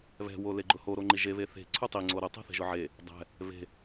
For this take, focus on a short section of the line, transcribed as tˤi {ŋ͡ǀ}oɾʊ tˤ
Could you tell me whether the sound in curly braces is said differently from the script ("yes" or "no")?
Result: no